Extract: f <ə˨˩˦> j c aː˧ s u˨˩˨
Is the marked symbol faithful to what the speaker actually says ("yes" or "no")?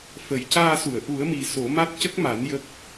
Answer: yes